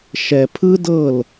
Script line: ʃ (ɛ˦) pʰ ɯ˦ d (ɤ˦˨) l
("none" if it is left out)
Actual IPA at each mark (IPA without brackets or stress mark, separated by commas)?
ɛ˨, ɤ˦˨